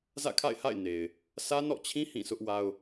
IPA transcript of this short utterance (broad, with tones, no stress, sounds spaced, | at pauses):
z ä̰˦˨ kʰ a̰˦˨ ɪ̯ h a̰˦˨ ɪ̯ n e˨ ɪ̯ | sʰ ä˦ n ɔ̰˦˨ t͡ɕʰ ĩ˦ h ĩ˦˨ s ʊ˦ ʔ w a˦ ʊ̯